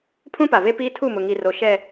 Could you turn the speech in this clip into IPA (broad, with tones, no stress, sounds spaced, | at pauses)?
pʰ ũ˦ p a˨ v e˦ p iː˦ tʰ u˦˨ m ʊ˨ ŋ i˨ r o˨ ʃ ɛ˨